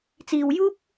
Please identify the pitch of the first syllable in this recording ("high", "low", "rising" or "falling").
low